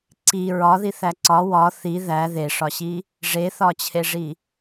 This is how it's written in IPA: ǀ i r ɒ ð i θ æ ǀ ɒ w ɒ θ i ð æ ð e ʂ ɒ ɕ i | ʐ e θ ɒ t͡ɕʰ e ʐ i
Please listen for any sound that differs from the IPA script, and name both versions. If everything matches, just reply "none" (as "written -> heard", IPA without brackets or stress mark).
r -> ɹ